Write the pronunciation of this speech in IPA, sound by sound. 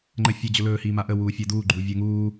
ŋ͡ǃ ə fʲ ɵ d͡ʑ ɵ l ɵː h iː m a ʔ ə w uː fʲ əː d uː ɡ͡ǃ uː vʲ ɵː ŋ uː

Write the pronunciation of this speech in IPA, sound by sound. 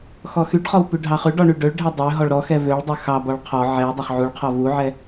x ɔ x y ɖ χ ɔ w p y ɖʱ ɑ χ ʉ ɖ ɔ ɳ y ɖ ø ɭ ɖʱ ɛ dˤ ø ɦ ɔ ɭ ɾ ɔ x ɛ v ø ɭ dˤ ø x ɑ b ɔ ɭ qʰ ɔ ʕ ɛ w dˤ ɑ χ ʕ u ɭ qʰ ɔ v u ʕ ɛ

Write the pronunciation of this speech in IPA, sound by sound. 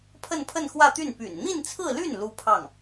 pʰ ə˥˧ n pʰ ə˥˧ n x w ä˥˧ t̪ y˥˩ n p y̰˨˩ n n̪ i˥˧ n t͡sʰ ɹ̩˥˧ l y˥˩ n l u˥ pʰ ɑ˥˩ ŋ

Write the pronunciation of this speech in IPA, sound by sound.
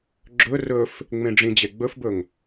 ɡ͡ǁ ɵ r ɵ f | ŋ͡m ẽ ɖ͡ʐ ĩ d͡ʑ e ɡ͡b ɵ f b ɵ ŋ

